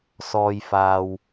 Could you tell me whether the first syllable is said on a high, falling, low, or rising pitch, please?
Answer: low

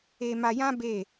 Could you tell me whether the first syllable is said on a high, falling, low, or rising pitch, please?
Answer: high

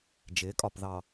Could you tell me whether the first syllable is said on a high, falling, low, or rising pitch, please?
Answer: rising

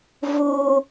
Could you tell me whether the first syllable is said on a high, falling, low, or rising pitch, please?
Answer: high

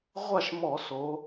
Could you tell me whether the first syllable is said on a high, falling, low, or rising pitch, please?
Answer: falling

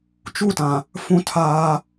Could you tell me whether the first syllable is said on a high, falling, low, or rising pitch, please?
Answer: falling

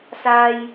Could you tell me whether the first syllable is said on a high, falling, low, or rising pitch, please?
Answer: high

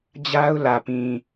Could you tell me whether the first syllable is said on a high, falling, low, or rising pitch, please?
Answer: high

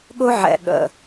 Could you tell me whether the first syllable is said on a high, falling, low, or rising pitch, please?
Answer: high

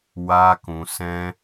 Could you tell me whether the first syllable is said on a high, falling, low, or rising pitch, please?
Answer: high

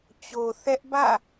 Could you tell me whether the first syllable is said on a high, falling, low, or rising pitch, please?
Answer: low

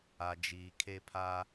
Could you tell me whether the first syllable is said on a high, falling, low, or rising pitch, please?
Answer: low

